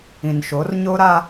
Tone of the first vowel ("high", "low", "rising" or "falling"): low